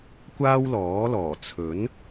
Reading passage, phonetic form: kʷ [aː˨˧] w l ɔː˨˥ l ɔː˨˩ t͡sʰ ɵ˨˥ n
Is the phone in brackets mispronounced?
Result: yes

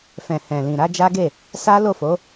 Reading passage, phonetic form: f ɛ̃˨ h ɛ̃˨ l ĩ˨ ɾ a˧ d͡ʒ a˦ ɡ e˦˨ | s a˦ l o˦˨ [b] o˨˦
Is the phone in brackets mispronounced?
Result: yes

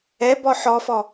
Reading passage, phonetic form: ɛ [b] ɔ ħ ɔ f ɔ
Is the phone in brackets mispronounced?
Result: no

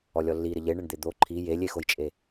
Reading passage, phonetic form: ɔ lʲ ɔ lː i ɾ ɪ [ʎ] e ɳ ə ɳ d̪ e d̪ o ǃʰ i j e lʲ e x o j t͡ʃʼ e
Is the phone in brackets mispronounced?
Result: no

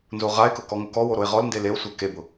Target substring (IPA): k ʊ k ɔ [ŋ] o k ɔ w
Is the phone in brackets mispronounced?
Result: no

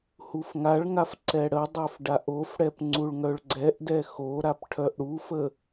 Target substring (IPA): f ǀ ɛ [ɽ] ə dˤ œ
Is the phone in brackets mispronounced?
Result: no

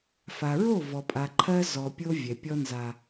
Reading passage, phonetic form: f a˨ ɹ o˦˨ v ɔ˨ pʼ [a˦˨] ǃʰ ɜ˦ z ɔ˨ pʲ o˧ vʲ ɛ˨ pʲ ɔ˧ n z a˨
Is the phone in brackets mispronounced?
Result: yes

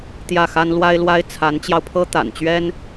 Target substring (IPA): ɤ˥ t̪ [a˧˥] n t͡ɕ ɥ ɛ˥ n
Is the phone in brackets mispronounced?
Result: yes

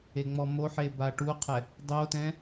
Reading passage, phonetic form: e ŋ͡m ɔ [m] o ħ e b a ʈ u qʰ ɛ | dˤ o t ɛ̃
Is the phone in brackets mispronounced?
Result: no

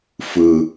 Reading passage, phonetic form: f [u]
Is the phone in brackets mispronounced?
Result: yes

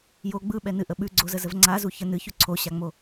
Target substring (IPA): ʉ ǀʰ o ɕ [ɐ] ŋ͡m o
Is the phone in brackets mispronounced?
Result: yes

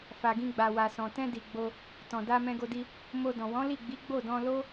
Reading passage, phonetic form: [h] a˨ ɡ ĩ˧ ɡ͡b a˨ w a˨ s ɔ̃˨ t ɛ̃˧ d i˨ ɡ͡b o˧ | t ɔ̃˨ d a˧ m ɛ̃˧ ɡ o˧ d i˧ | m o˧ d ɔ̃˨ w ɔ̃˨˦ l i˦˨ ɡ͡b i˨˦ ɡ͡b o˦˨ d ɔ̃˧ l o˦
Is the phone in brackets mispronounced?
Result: yes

